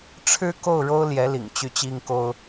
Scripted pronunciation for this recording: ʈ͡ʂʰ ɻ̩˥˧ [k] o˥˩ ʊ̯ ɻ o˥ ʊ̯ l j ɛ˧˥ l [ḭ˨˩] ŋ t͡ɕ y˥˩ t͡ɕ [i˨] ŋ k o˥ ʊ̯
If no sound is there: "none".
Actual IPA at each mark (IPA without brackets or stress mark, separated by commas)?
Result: k, ḭ˨˩, i˥